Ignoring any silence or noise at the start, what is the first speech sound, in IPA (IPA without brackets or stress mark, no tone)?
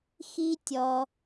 x